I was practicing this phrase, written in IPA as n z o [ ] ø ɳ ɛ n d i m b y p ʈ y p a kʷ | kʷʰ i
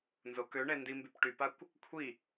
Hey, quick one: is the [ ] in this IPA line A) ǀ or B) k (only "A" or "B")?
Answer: B